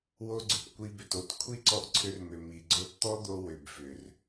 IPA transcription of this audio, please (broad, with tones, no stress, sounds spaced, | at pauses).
w o˧ ɡ͡ǀ ʏ˩ p kʷ i˧ b ʏ˩ t o˧ t kʷʰ i˥ ǀ ɔ˧ ʔ ǀʰ ʏ˧ r m ʏ˩ m i˩ ɡ͡ǀ o˧ t t̪ ɔ˥ d̪ o˧ w ʏ˩ b f ʏ˩ r